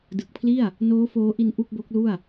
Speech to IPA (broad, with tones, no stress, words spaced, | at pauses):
dɯ˨˩k̚pʰli˥˩a̯ | noː˦˥ foː˦˥ʔi˧n ʔu˥˩k̚bo˦˥k̚lu˥˩a̯